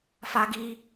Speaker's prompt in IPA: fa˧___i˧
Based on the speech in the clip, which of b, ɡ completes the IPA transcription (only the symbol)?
ɡ